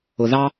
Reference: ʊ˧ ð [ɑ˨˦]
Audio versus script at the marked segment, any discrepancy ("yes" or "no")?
yes